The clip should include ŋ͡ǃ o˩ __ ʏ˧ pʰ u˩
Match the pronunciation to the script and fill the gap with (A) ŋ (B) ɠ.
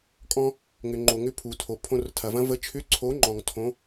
A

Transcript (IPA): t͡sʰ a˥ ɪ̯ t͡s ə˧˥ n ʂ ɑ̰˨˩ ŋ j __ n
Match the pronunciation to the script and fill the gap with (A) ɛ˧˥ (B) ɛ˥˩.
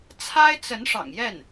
B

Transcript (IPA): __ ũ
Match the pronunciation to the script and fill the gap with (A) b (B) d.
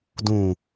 B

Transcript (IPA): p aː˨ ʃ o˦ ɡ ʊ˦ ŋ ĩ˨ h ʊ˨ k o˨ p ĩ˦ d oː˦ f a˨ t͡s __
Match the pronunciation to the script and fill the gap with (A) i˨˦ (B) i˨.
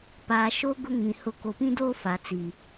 B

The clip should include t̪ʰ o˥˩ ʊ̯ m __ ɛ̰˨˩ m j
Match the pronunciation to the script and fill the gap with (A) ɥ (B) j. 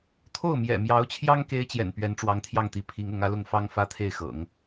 B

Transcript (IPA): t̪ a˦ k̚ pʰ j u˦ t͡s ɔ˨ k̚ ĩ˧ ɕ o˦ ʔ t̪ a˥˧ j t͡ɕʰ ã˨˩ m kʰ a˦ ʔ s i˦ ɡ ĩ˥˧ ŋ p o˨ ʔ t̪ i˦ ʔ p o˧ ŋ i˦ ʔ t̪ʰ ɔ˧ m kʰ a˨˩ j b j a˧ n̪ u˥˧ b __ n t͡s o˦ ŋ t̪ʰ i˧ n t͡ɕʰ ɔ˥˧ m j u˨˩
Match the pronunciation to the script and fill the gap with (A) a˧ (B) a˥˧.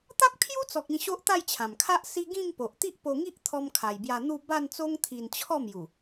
B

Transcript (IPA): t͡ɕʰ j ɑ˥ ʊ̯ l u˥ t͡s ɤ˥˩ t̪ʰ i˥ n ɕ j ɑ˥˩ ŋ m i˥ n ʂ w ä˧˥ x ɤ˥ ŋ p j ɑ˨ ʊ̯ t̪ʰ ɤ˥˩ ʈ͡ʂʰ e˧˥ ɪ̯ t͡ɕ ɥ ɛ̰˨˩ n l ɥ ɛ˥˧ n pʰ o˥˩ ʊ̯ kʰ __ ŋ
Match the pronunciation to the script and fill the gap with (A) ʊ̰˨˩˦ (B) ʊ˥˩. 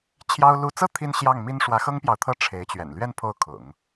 A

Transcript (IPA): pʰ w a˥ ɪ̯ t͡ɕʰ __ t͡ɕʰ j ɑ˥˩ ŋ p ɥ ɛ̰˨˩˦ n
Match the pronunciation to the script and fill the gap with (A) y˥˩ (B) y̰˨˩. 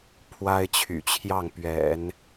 B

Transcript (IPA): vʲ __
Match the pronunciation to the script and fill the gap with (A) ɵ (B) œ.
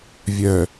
B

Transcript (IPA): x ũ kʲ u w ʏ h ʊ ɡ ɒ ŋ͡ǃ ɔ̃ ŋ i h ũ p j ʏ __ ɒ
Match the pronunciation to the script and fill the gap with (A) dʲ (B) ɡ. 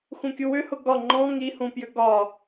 B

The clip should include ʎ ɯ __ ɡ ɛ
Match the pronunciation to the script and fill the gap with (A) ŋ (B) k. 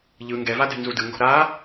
A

